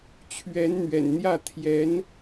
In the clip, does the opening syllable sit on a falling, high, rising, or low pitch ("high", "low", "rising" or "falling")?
rising